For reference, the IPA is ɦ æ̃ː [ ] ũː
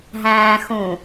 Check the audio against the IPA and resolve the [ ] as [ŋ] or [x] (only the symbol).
x